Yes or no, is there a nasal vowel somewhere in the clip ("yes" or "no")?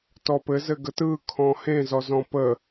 yes